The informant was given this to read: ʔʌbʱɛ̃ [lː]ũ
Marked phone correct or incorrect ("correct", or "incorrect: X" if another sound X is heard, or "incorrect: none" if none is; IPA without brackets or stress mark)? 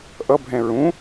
incorrect: ɹ